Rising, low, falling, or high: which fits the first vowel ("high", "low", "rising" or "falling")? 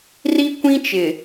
high